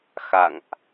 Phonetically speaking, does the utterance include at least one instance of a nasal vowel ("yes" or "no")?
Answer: no